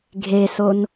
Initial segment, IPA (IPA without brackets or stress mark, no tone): ɡʱ